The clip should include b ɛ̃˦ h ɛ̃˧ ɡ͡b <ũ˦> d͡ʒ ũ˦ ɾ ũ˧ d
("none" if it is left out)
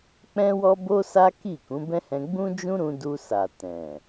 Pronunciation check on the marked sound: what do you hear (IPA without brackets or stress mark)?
ũ˦